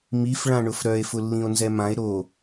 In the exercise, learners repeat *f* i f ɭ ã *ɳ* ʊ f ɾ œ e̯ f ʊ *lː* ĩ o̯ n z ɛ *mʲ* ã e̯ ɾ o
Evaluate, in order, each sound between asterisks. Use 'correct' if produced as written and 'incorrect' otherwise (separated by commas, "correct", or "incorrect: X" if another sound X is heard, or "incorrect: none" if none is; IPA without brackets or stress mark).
incorrect: m, correct, correct, incorrect: m